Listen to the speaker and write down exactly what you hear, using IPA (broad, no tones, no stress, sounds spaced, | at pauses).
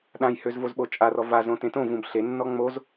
ɗ ã j h ø z v o z ɓ o t͡ʃʼ a r ɔ v a z õ t ẽ t õ v ũ b ɬ e nː ɔ ŋ͡m o z